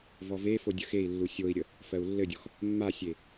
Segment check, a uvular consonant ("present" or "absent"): absent